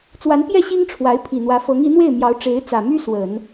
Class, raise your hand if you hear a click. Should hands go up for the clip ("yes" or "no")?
no